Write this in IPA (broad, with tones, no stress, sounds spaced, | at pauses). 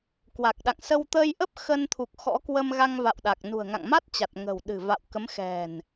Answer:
k w a˨˩ k̚ ɗ a̰˧˨ ŋ s ə˧ w t̪ ə˧ j ʔ ə˦˥ p̚ x ə˧ n t̪ʰ u˨˩ k̚ x ɔ̰˧˥ k w ə˧ m ɣ a˧ ŋ v a̰˧˨ w ɗ a˨˩ k̚ n ṳ˨˩ ə̯ ŋ a̰˧˨ ŋ m a˦˥ t̚ t͡ɕ a˨˩ t̚ ŋ ə̤˨˩ w ɗ ɨ̤˨˩ v a̰˧˨ w k ə˨˦ m x ɛ̤˨˩ n